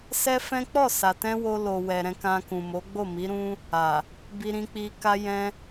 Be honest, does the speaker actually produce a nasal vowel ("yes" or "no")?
yes